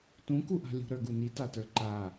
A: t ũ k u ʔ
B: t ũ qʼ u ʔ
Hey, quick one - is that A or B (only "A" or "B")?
A